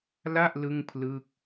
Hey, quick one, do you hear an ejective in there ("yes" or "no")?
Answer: no